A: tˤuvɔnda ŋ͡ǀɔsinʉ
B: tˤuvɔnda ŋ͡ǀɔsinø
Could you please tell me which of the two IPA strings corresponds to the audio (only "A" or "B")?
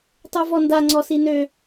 B